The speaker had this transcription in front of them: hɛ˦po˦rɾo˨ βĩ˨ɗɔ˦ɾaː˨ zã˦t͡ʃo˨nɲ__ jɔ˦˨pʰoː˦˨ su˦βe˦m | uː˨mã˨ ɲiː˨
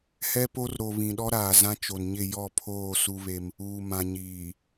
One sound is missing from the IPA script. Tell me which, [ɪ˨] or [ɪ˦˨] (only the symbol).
ɪ˦˨